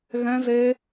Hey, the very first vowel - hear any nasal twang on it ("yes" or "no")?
yes